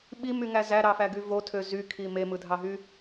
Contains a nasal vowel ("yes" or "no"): no